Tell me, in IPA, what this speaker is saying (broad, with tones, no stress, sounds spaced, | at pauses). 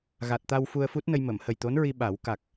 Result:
ɣ a˨˩ t̚ t̪ a˧ w f u˧ ə̯ f u˦˥ t̚ n ə˧ j m ə˨˩˨ m h ə˨˩ j t̪ o˧˥ n ɹ i˧ ɓ a˨˩˦ w k a˨˩ k̚